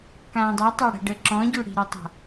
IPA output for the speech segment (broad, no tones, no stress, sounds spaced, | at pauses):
k ãː dˤ ɛ tˤ a ɽ ɛ̤ ɖ ə ǁ ɔ̃ ɟ ʉ ɽ i̤ ɾ ɨ tˤ a̤